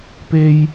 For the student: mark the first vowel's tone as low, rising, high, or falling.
high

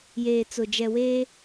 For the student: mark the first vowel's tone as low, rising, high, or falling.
low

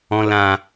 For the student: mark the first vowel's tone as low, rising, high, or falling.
low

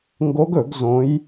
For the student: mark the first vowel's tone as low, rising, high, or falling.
rising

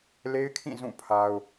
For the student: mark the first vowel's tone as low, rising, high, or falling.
high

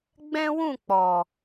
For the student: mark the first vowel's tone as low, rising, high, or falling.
high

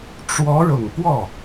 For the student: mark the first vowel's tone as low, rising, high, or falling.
rising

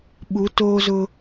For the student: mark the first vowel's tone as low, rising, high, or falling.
rising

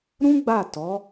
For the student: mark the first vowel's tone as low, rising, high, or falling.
high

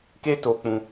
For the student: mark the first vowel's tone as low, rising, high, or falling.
high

